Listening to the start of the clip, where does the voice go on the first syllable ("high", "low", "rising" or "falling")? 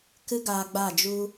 high